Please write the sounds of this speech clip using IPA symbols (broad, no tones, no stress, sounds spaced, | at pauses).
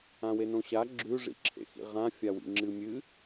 ã w e n õ ɕ a ɡ͡ǁ ʉ ʐ ḭ ǁʰ ḛ x ḭ ʁ ã fʲ a w ḭ ŋ͡ǁ ɨ mʲ ɨ